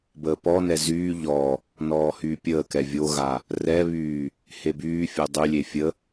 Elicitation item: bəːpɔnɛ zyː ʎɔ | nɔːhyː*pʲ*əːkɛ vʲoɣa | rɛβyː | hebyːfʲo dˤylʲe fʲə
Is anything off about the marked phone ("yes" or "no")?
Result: no